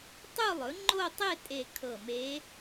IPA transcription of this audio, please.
tˤ u˥˧ lˠ ɵ˩˥ ŋ͡ǃ o˥˧ tˤ e˥˧ tʼ e˧˩ kʰ ɤ˧˩ m e˧˥

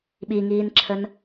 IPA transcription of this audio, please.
ɓ i ŋ iː n ǁʰ ə n

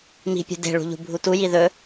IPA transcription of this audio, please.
m i̤ pʲ ṳ d e̤ ɭ ṳ ʎ ṳ bʱ u t u j i ð ɵ

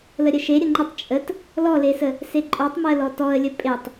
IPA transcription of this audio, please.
l ə ɾʲ ə ʃ e ɾʲ ə ŋ͡ǃ ə tˤ t͡ʃʼ ə t | l ɔ l e s ə | s e ǃʼ ɔ tˤ m ɜ l ɔ t ɔ ə̯ lʲ ə pʼ e tˤ

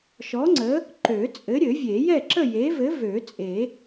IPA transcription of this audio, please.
ʃ ɔ˨˥ ŋ͡ǀ ə˨˥ | ǃ ø˨˩˦ t͡sʼ ɘ˨˥ ɾʲ ɘ˨˩˦ vʲ e˨˩˦ j ɛ˥˨ ǁ ə˥˨ j e˨˥ v ɘ˨˥ v ø˨˩˦ t͡sʼ e˨˩˦

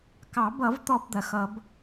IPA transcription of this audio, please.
k ɑ˨˩˦ b ʌ˨˩˦ v t̪ ɔ˧ b d̪ ɐ˨˩˦ x ʌ˨˩˦ b

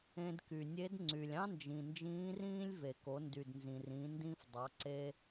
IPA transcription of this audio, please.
ẽ˧ d k y˩ nʲ e˧˥ d ŋ͡ǀ y˩ lʲ ɑ̃˥ n d͡ʒ ĩ˩ n d͡ʒ ĩː˧˥ r ĩː˥ lʲ v e˩ k o˩˧ n d y˩ d n z ĩ˩ r ĩ˩˧ n d ĩ˧ f dˤ ɑ˩˧ ǀ e˧

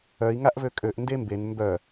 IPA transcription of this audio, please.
œ i̯ ŋ a ʔ v ø kʼ ø ʔ n d e m b e n m b œ

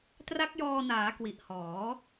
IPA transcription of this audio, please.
t r a˦˥ k̚ j ɔː˧ n aː˩˦ k w i˨˩ ʔ h ɔː˩˦

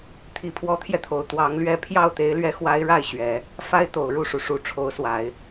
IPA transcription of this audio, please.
t̪ʰ i˧˥ pʰ w ɔ˧˥ t̪ʰ j ɛ˧ t̪ʰ o˨˩ ʊ̯ t̪ w ɑ˧˥ ŋ l ɥ ɛ˥˧ pʰ j ɑ˥˩ ʊ̯ t̪ e˧˥ ɪ̯ l ɥ ɛ˧˥ x w a˧˥ ɪ̯ ɻ a˥˩ ɪ̯ ɕ ɥ ɛ˨˩˦ | f a˥ ɪ̯ t̪ o˨˩ ʊ̯ ɻ u˥˩ ʂ u˩ ʂ u˧˥ ʈ͡ʂʰ o˧˥ ʊ̯ s w a˨˩˦ ɪ̯

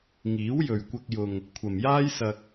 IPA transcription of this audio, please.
ŋ iː˨˥ w j ɵ˨ ɥ kʷ ɐ˧ k̚ j ʊ˨ ŋ | kʷʰ ɐ˨ m j aː˥ j s ɐ˧ k̚

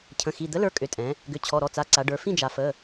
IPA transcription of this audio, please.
cʰ ə̃˩˧˩ x i˩˧˩ d̪ ə˨˥ l ə˞˩˧˩ kʼ ʏ˩˧˩ tʼ ɛ̃˩˧ | ɡ ʏ˩˧˩ t͡ɕʰ ɔ˩˧˩ ɾ ɔ˩˧˩ t͡s a˩˧˩ ǀ a˩˧ ɖ ə˞˩˧ f ĩ˥˨ d͡ʒ a˩˧ f ə˩˧˩

